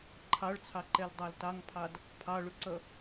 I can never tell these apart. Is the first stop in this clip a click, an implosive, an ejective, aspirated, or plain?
click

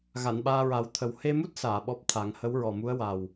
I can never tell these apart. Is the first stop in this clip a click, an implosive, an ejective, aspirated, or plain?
implosive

